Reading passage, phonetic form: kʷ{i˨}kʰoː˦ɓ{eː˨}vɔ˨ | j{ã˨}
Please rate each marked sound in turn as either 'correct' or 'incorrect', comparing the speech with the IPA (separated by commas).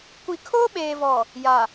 correct, correct, incorrect